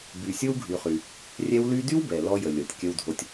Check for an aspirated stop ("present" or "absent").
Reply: absent